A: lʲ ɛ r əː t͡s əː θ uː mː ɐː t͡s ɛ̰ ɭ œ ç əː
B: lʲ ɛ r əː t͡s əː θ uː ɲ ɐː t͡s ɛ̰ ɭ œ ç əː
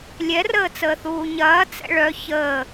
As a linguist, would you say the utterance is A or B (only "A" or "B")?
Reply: B